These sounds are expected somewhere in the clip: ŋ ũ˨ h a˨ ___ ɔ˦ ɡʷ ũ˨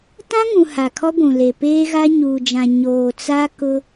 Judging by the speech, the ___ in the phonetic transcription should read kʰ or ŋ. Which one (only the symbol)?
kʰ